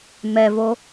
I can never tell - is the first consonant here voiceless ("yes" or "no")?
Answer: no